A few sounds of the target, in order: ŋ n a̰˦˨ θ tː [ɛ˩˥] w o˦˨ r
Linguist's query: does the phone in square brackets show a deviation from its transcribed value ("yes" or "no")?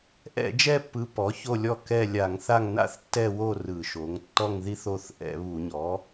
yes